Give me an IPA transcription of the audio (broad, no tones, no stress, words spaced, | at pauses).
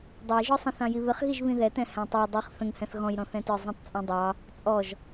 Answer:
dˤʌjʒɔsˤə̃ θɑ̃jiβɪχɣiʒ βĩðɛtɛ̃ hæ̃tˤæ dˤiχ θə̃ŋhɛ̃θ ɣɔ̃jɾɔ̃θɛ̃tə˞ zˤĩtˤt͡sʼɔ̃dˤɑ | t͡sʼɔʒ